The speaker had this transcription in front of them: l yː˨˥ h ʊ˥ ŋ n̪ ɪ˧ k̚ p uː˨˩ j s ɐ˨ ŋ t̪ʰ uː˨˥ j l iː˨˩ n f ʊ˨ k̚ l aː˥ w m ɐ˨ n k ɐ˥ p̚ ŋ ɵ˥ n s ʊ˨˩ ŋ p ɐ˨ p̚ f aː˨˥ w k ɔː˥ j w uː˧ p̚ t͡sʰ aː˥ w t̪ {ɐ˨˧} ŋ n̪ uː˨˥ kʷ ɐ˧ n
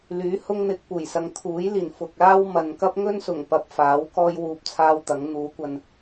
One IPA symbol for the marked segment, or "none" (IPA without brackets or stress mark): ɐ˨˥